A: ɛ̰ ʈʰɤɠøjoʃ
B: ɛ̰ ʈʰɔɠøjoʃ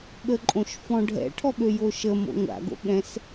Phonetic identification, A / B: B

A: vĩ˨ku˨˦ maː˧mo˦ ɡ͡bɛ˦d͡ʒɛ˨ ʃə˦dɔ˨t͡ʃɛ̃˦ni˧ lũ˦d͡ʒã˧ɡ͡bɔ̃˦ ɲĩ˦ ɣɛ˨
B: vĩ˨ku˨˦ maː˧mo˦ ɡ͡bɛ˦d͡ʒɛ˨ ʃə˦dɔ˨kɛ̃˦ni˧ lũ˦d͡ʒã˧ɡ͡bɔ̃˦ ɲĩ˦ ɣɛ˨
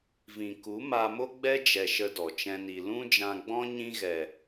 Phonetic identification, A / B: A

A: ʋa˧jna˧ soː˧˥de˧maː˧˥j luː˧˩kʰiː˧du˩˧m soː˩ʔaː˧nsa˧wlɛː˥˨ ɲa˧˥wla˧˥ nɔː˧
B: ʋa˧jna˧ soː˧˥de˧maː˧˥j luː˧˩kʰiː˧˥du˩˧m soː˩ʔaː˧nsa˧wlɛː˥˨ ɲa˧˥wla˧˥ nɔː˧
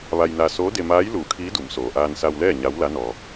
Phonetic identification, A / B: B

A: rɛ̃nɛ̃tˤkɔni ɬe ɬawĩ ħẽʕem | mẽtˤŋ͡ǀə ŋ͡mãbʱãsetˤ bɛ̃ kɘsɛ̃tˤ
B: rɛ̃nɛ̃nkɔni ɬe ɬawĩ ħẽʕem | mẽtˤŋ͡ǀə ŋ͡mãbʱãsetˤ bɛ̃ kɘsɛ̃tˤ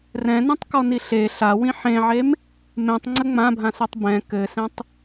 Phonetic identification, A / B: A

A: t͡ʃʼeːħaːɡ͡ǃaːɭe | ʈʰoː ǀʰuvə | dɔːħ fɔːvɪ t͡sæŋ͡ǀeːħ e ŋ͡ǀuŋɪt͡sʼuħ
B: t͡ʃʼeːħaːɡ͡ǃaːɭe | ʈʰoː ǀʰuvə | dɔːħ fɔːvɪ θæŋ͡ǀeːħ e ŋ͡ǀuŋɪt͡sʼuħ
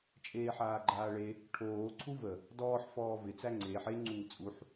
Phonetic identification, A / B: A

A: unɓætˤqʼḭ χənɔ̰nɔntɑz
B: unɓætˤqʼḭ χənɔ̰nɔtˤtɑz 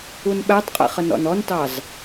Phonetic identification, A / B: A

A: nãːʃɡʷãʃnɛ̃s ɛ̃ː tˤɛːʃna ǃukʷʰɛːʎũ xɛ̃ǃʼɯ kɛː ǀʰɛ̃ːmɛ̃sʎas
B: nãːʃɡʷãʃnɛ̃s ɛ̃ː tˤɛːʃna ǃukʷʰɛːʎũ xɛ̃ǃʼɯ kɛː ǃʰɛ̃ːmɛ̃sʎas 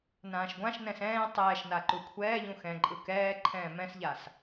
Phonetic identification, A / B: B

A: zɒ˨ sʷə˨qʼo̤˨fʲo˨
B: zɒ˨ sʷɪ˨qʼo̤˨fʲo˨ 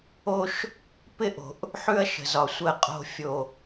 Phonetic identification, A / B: A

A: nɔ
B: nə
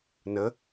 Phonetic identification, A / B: B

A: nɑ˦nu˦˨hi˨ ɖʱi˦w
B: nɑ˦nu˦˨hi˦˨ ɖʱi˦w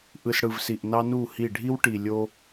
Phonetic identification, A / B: B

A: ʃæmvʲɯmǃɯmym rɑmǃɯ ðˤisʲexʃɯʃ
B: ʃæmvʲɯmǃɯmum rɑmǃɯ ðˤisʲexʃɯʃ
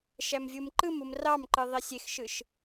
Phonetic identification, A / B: B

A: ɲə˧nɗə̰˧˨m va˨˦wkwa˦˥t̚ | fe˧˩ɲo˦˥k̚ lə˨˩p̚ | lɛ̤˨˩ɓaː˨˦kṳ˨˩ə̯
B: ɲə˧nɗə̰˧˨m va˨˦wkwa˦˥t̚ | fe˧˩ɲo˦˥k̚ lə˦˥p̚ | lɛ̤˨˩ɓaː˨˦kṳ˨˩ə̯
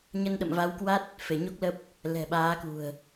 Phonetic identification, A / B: B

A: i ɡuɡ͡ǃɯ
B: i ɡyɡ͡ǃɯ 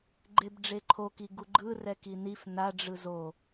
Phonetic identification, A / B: A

